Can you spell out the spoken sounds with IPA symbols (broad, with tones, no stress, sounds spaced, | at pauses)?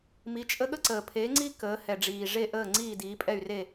m i˩˥ t͡ʃʼ ə˥ ɠ ə˥ ǀ əː˩ pʰ eː˩˥ ŋ͡ǀ i˥ k əː˩˥ h ɛ˩ ɖ͡ʐ iː˩ ʐ e˥˩ ʔ əː˥˩ ŋ͡ǀ iː˥˩ d iː˩˥ pʼ ɛ˥˩ y̯ r e˥˩